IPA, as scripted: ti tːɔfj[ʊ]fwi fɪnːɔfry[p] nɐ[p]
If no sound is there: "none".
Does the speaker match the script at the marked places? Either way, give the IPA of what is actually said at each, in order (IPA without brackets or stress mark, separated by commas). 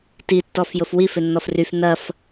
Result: ʊ, f, f